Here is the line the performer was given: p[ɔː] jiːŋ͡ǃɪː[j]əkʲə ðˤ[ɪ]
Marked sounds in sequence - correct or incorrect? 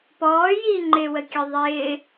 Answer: correct, incorrect: w, incorrect: ɪː

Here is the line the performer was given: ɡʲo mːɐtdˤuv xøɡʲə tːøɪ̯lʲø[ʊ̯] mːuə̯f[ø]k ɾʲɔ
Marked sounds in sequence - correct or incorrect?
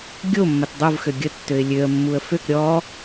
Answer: incorrect: ə̯, correct

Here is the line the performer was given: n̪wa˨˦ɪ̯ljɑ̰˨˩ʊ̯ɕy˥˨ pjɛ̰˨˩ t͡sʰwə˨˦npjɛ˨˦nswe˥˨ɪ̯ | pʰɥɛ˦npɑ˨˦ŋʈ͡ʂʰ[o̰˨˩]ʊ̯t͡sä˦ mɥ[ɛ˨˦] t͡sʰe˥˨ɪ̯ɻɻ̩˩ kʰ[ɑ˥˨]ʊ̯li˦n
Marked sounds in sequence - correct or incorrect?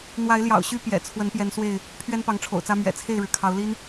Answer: correct, incorrect: ɛ̰˨˩, incorrect: ɑ˨˦

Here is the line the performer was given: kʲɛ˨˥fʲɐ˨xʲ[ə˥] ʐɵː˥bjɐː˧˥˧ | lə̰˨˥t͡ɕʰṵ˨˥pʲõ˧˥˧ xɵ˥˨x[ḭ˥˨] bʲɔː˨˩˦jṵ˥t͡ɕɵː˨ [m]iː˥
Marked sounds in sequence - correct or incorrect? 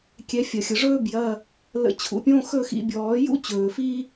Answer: incorrect: ə˨, incorrect: ḭ˧˥˧, incorrect: f

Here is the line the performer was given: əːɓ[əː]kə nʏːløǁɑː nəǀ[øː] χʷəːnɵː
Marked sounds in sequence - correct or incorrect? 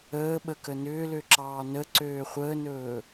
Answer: incorrect: ə, correct

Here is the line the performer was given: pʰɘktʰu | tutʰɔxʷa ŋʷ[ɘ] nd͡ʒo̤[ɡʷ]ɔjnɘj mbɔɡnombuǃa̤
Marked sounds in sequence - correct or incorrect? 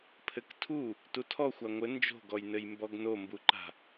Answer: correct, incorrect: ɡ

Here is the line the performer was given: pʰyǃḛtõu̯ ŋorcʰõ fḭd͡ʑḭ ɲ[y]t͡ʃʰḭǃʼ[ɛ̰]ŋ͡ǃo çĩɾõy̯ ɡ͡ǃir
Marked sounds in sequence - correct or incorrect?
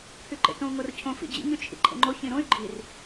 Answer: correct, incorrect: ḛ

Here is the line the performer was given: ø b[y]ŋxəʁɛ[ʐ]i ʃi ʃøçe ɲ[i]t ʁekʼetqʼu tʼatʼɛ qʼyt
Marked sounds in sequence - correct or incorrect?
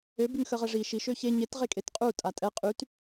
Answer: correct, correct, incorrect: e

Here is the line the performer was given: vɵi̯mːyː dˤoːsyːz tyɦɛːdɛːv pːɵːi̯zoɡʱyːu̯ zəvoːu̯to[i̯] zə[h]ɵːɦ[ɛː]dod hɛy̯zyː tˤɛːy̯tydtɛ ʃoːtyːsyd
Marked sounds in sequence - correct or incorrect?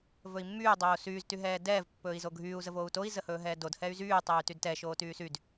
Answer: correct, correct, correct

